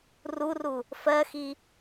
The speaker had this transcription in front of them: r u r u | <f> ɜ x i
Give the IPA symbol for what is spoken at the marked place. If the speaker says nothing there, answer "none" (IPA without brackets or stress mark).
f